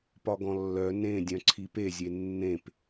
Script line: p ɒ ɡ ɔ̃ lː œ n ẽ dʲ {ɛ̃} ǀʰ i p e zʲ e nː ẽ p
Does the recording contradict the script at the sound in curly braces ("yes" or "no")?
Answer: yes